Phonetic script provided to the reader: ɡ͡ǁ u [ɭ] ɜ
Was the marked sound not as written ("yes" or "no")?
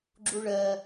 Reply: no